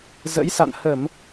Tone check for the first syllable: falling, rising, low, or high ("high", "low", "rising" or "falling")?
rising